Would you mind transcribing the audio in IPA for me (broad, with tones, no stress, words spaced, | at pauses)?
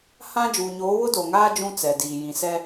hã˦ d͡ʒuː˨ɲoː˨˦ wʊ˦do˨ŋaː˦ d͡ʒũ˦ t͡sɛ˨diː˨ jĩ˨sɛ˦